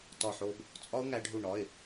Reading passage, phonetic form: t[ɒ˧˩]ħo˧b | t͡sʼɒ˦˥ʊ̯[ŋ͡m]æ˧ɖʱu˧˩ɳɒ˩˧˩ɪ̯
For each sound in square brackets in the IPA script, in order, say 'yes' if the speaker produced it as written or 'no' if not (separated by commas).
yes, no